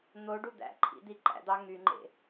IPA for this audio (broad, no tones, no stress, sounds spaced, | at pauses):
n̪ o ɖ u d̪ æ̰ ǃʰ ḭ d̪ i ǃ æ̰ d̪ ɑ ŋ y ŋ͡ǃ ḛ